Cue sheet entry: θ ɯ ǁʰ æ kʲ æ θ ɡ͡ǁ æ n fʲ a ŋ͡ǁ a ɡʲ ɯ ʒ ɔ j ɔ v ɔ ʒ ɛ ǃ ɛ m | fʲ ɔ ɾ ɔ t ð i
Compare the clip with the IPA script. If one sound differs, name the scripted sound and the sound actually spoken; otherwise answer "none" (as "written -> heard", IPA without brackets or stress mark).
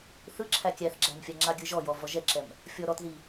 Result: ǃ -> ǁ